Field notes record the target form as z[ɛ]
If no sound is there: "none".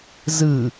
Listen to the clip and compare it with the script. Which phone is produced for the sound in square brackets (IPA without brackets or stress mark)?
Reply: ɨ